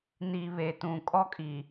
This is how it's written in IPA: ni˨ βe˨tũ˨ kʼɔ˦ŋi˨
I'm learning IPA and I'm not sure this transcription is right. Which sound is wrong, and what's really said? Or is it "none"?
ŋ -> kʼ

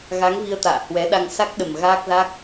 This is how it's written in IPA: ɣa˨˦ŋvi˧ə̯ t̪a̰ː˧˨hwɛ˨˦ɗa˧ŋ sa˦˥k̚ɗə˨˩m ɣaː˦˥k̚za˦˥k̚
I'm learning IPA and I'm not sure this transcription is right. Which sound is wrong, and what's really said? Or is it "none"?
none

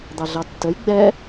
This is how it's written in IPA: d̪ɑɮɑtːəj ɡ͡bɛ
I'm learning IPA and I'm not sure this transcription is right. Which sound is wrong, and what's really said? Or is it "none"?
none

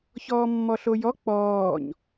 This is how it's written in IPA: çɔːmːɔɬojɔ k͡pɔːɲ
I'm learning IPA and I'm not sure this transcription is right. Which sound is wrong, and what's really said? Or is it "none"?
none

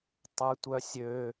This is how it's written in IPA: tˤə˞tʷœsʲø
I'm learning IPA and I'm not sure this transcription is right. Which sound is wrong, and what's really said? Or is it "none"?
none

